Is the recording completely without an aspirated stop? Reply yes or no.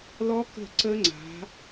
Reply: yes